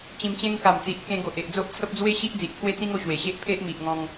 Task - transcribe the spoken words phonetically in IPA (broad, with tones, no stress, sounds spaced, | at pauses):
t͡ɕ ĩ˧ m t͡ɕ ẽ˦ ŋ k a˨˩ m t͡s i˨ ʔ k ẽ˧ ɡ o˨ ʔ e˨ ʔ d͡z o˦ ʔ t͡sʰ ə˦ p̚ d͡z w e˦ ɕ i˦ ʔ d͡z i˨ ʔ pʰ w e˦ t͡s ĩ˦ ŋ o˧ ɕ w e˨˩ ɕ e˦ ʔ pʰ e˦ ʔ m i˨ ʔ ŋ ɔ̃˧ ŋ